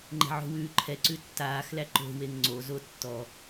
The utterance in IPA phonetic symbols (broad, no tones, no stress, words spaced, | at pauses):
ŋ͡ǃɛ̤ʕo̤wʉːǃʰɛ ǀʉtːaːxlæ ǃo̤weŋ ŋ͡ǀo zotːɔ